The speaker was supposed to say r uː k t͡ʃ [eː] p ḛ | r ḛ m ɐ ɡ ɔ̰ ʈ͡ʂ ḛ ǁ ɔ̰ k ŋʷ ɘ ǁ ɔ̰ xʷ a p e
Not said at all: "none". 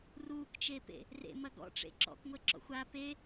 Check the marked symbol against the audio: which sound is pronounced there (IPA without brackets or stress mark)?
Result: eː